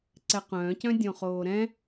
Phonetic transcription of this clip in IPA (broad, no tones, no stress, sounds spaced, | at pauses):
ǀ ɛ q œ̃ː c œ̃ dʲ õ χ oː ɾ ɛ̃